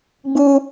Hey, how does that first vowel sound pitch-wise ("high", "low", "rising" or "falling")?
high